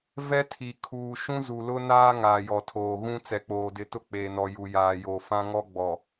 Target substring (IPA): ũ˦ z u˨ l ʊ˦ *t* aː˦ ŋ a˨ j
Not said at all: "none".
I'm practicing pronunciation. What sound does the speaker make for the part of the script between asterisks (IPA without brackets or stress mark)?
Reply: n